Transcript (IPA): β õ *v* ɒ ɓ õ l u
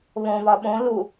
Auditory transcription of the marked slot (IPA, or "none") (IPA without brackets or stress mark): v